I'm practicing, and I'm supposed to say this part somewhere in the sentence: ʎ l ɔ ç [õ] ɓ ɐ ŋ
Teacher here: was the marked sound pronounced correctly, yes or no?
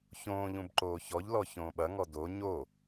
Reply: no